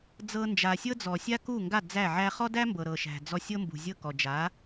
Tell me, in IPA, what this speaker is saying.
d͡z ɤ˧ n d͡ʒ a˩ sʲ ɤ˥ d͡z ɔ˩ sʲ a˥ k u˥˩ ŋ ɡ a˥˩ d͡z æ˥˩ ʕ æ˥ χ ɔ˥ d æ˥ m b ɤ˩ ɾ ɤ˩ ʃ æ̤˩ d͡z ɔ˧ sʲ ɤ˥ m b ṳ˩ zʲ ɤ˥˩ k ɔ˩ d͡ʒ a˩˥

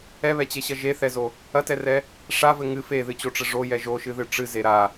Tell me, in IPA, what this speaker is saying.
ɛ β ɛ t͡ɕ e ɕ ɐ ʒ e θ ɛ z o | ɐ t ɛ r ɛ | ʂ a v ɘ ŋ ɨ f e ð ɨ t͡ɕ o ʈ͡ʂ ɘ ʐ o j ɛ ʒ o ʃ ɨ ð ɨ ʈ͡ʂ ɨ z e ɾ a

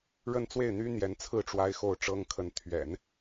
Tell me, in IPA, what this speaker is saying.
ɻ ə˥˧ n t͡s w e˥˩ ɪ̯ n̪ y˥ n̪ j ɛ˧˥ n t͡sʰ ɹ̩˥˩ ʈ͡ʂ w a˥ ɪ̯ x o˥˩ ʊ̯ ʈ͡ʂ ɤ˥ ŋ kʰ ə˧˥ n t̪ʰ ɥ ɛ̰˨˩˦ n

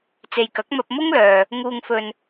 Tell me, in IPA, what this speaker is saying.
t͡s e˨ j k ɐ˨˥ k̚ m ɐ˧ p̚ m ʊ˥ ŋ l œː˨ | ŋ uː˨ ŋ f ɵ˨ n

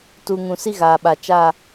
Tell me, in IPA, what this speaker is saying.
t uː˨ ŋ ũ˨ s i˦ ɣ aː˨ ɓ a˨ t͡ʃ a˦˨

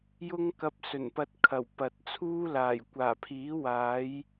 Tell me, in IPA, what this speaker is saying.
j ʊ˥ ŋ k ɐ˧ p̚ s ɵ˨˩ n p ɐ˧ t̚ kʰ ɐ˨˩ w p ɐ˨ t̚ t͡sʰ uː˥ l aː˨˩ j kʷ aː˨˩ pʰ iː˨˥ w aː˨˥ j

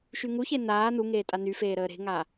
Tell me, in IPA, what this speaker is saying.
ʃ y ŋ u ç e n aː n u ŋ eː tʼ a n y f eː ɾ əː ɾ e̤ ŋ a

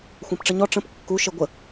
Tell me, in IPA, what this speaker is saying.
xʷ ã p ʈ͡ʂ ə ɲ ɔ ʈ͡ʂ ə̃ p kː u ʃ e ɡʷ ə

